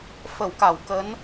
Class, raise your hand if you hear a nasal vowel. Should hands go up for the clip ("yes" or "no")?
no